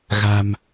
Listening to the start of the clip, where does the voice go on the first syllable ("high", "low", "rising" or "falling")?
low